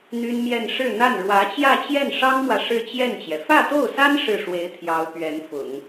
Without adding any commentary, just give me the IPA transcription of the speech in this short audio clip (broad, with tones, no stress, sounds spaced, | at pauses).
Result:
n̪ y˥ n m j ɛ˥˧ n ʂ ɻ̩˥˧ n̪ a˥˩ n ɻ w ä˧˥ t͡ɕ j ä˥˧ t͡ɕ j ɛ˥˩ n ʂ ɑ˥ ŋ m w ä˨ ʂ ɻ̩˥˧ t͡ɕ j ɛ˥˩ n t͡ɕ j ɛ˩ f ä˥˧ t̪ o˥˩ ʊ̯ s a˥ n ʂ ɻ̩˥˩ ʂ w e˧˥ ɪ̯ t̪ʰ j ɑ˧˥ ʊ̯ p ɥ ɛ˧˥ n f ʊ̰˨˩˦ ŋ